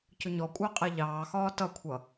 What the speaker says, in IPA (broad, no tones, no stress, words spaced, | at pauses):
cʊɲɔkʷʼəː qʼɛʎɑːxɒː tʌkʷʰʌ